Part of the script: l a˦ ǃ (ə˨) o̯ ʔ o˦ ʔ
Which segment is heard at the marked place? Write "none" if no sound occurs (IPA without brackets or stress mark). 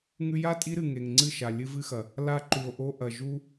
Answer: ʉ˨